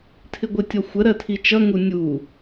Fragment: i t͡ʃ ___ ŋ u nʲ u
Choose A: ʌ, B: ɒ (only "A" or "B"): A